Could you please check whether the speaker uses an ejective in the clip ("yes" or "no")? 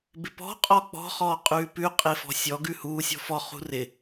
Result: yes